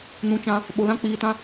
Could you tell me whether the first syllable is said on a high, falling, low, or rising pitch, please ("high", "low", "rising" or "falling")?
rising